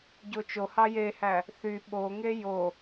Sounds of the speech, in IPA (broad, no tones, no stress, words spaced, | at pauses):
ɟot͡ʃohɑ jehæ | θy ɓoŋe jo